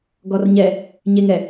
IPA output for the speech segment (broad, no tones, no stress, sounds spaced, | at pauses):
ɡ ɔ r ɲ ɛ | ɲ e ŋ ɛ